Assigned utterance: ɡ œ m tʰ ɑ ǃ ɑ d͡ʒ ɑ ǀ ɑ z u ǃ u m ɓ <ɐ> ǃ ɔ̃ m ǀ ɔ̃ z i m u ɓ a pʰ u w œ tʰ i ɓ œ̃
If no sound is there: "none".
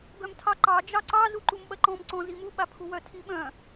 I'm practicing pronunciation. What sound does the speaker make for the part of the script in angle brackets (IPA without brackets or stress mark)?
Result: ɐ